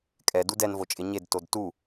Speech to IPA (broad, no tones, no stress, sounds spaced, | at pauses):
kʼ ɛ d u d ɛ n v o t͡ʃʼ ɪ ɲ e d t o d t u